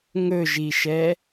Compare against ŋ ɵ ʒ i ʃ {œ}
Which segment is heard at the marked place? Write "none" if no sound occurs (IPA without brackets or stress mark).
ɛ